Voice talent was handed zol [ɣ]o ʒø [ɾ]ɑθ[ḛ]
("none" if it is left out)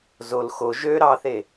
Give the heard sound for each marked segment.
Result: x, ɾ, e

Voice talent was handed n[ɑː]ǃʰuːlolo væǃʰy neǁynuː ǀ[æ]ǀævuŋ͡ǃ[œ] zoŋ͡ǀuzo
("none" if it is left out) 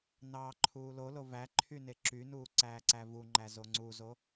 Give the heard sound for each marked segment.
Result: ɑː, æː, æ

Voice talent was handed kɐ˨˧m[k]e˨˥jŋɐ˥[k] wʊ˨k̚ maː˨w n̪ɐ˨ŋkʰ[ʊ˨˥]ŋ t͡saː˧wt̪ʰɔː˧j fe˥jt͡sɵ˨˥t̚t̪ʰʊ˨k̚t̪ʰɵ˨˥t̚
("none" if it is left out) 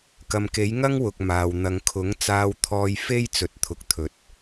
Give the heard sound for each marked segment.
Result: k, ŋ, ʊ˨˥

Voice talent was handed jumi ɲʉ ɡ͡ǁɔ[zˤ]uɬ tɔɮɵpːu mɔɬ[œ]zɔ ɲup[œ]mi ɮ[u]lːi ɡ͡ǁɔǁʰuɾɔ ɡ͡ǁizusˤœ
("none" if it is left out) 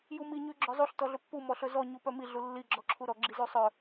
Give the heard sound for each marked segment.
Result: zˤ, ɵ, œ, u

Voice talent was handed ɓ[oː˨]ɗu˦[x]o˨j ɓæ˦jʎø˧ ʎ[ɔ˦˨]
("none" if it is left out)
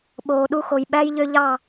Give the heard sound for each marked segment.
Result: oː˨, x, ɑ˦˨

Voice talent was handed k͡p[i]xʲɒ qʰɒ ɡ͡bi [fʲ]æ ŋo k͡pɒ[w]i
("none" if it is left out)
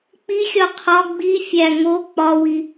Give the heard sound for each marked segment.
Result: i, fʲ, w

